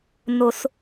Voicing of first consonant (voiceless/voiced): voiced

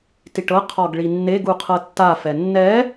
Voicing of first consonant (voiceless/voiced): voiceless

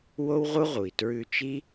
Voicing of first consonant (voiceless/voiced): voiced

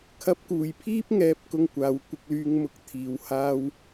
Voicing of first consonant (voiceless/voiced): voiceless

